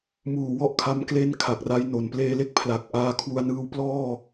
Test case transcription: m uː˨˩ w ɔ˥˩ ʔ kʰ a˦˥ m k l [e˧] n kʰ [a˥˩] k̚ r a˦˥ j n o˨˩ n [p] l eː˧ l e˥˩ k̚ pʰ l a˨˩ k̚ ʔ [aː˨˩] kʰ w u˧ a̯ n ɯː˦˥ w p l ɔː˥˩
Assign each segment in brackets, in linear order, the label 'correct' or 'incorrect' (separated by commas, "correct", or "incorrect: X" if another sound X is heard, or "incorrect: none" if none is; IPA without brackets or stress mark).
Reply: incorrect: e˥˩, incorrect: a˨˩, correct, incorrect: aː˧